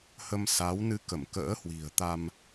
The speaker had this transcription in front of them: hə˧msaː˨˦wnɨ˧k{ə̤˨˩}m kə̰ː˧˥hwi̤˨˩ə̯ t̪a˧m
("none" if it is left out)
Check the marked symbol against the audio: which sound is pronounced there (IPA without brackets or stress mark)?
ə˧˩